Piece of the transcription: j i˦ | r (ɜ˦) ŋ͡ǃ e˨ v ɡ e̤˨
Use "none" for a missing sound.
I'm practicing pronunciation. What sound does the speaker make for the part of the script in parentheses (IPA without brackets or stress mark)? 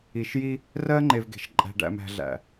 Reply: ɜ˦